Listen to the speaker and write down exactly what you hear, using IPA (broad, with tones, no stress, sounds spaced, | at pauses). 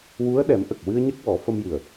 w u˧˥ ə̯ ɗ ɛ˨˩˦ m ʔ ə˨˩ k̚ w ɨ˧ ə̯ ɲ ə˦˥ k̚ w ɔ˨˩˦ f ə˧ m j ɨ˨˩ ə̯